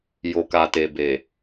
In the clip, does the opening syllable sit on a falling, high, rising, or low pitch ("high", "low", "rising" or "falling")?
low